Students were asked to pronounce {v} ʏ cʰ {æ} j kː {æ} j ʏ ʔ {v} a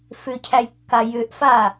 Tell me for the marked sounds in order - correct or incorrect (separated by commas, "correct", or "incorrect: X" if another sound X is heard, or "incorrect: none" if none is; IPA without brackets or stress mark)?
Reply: incorrect: f, correct, incorrect: a, incorrect: f